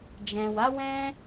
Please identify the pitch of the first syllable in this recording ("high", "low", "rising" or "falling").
low